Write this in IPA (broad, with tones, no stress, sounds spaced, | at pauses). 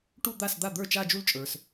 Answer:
ʈ u˥˧ d̪ a˥˩ s d̪ a˥˩ d̪ ə˞˥˩ t͡ʃ a˥˧ d͡ʒ u˥˧ l t͡ʃʼ ə˞˩ s